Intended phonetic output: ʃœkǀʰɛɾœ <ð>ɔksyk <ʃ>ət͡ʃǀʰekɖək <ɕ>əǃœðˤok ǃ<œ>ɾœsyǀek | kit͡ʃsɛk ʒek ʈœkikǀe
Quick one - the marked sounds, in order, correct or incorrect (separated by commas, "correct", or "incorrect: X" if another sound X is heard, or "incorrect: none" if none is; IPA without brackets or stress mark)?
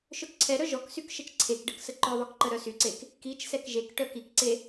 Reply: incorrect: ʒ, correct, incorrect: s, incorrect: ə